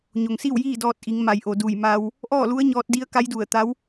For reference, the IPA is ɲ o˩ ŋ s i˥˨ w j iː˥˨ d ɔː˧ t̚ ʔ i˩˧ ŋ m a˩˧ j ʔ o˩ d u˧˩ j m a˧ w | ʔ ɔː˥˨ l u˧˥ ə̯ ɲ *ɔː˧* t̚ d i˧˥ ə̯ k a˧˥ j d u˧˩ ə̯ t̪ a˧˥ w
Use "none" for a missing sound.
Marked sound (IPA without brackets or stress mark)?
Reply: ɔː˧